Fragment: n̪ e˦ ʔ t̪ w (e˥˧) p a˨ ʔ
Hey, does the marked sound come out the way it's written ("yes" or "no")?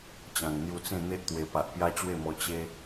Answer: no